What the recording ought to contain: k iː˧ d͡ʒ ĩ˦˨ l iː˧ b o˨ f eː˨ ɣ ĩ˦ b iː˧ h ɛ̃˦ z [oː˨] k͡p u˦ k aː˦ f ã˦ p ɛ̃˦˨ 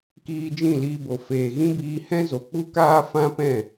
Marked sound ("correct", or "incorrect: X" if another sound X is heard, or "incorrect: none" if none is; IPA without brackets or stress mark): incorrect: o˨